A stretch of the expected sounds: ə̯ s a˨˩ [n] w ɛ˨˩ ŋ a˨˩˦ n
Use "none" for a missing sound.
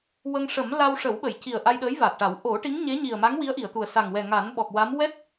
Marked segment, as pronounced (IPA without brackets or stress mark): ŋ